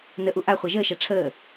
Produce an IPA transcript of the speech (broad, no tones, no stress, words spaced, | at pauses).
nəʔu ʔaχʷa ʒəːʃa ʈ͡ʂʰəː